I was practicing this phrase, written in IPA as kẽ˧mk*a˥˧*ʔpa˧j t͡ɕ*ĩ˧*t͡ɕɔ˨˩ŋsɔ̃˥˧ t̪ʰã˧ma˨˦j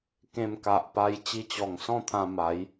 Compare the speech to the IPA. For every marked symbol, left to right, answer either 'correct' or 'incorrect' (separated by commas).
incorrect, incorrect